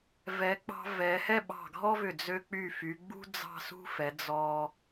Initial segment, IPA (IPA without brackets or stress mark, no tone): v